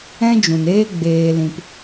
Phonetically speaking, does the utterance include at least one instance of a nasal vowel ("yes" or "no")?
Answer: yes